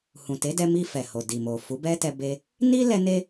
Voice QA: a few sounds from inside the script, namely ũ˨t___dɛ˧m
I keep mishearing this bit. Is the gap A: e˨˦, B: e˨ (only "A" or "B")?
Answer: A